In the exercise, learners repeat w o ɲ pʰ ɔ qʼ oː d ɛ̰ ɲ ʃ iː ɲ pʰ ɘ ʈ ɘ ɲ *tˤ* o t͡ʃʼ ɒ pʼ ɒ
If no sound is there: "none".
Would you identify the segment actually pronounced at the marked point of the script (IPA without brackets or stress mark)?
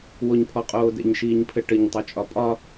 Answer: tˤ